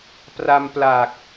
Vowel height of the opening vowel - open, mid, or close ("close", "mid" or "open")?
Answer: open